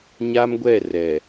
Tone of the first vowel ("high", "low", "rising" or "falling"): high